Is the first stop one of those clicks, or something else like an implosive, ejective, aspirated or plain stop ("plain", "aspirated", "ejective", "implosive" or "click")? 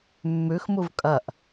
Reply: ejective